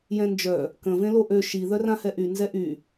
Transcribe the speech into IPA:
j ɛ̃ n d͡ʒ œ | k ə̃ v ẽ l o ʔ ø ʃ i ð œ r ã h ɛ ʔ y n z ɛ ʔ y

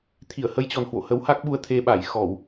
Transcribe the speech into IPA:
t̪ʰ i˧˩ ə̯ h ə˧ j t͡ɕ ɔ˨˩ n h w o̰˧˨ h ə˨˦ w h a˦˥ k̚ ɓ u˧ ə̯ t̪ʰ e˧ ɓ a˧˩ j x ɔ˧˩˨ w

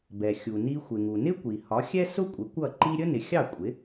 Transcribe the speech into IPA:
b ɛ˩ xʲ u˩ n i˧ xʷ ɪ˩ ŋ u˩ n ɪ˥ kʷ i˩ h ɒ˩˥ xʲ ɛ˥ s ʊ˥ kʷʼ ɪ˩˥ kʷ ʌ˥˩ ǃ i˥ ɾʲ ə˥ n ɪ˩˥ xʲ ɑ˥˩ kʷʼ ɪ˩˥

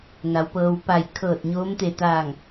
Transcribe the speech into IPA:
n a˩˧ w p ɤː˧ w p a˧˩ j kʰ ɤː˧˩ t̚ ɲ oː˧˥ m t̪ e˧˩ t̪ aː˧˩ ŋ

